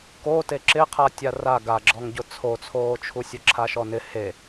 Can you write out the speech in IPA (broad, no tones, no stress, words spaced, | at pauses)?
kote ǁɪqʰa tʲara ɡaɡ͡ǁɔŋɟʊ t͡sʰot͡sʰoːt͡ʃʰusʲʊ ǁʰaʃɔnɪ he